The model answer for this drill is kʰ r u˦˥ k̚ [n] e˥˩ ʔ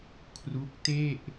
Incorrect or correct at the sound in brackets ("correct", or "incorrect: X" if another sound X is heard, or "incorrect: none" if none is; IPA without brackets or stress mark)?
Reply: incorrect: t